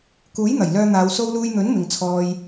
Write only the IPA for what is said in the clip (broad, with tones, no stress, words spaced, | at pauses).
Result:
kuː˨˥jn̪ɐ˨˩j lœː˧n̪aː˨˧w so˧wluː˧jn̪ɵ˨˥n mɪ˨ŋt͡sʰɔː˧j